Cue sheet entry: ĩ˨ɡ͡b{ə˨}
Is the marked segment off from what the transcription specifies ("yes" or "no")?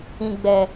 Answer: yes